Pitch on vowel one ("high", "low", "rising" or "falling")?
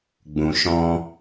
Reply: low